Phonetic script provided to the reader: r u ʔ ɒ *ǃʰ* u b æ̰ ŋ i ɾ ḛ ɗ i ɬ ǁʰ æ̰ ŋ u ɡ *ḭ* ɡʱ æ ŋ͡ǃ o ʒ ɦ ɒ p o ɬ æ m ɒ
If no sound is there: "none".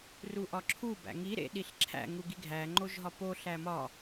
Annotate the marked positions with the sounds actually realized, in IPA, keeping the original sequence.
ǁʰ, i

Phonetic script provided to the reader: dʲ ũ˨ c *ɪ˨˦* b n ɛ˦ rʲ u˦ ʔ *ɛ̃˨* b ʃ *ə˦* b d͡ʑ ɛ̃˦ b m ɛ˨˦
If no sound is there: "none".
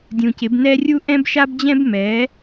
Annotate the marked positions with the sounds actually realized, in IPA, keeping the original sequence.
ɪ˨˦, ɛ̃˦, a˦

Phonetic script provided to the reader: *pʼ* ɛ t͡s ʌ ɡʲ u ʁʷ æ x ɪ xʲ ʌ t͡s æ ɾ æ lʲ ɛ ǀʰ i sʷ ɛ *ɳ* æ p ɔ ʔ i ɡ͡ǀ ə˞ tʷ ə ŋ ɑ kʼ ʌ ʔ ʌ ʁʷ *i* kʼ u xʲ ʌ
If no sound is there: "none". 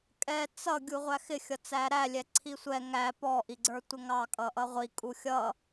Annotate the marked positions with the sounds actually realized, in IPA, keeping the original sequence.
kʼ, ŋ, i

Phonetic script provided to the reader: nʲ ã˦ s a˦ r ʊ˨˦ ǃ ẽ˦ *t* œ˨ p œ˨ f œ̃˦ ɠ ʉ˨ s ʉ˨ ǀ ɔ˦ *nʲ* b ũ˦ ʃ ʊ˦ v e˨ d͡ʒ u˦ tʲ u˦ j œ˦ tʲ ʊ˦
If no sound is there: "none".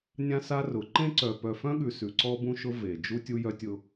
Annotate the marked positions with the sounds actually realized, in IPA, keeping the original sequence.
ǀ, none

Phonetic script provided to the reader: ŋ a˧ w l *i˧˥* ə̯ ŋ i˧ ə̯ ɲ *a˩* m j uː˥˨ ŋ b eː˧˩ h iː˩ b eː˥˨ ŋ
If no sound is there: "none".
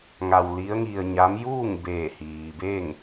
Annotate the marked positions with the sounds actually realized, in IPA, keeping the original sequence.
i˧˥, a˧˥

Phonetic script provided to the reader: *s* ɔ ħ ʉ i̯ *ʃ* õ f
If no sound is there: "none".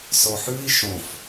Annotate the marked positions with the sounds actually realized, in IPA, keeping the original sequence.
s, ʃ

